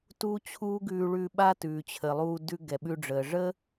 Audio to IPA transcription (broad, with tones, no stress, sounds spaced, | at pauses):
t uː˦ t͡ɕʰ uː˦ ɡ ʉː˧ ɭ ʉ˧ ɓ a˦ t ʉː˨ t͡ɕʰ ə˨ lˠ uː˧ d ʉ˧ ɡ ɛ˨ ɓ ʉ˧ ɖ͡ʐ əː˨ ʐ ə˦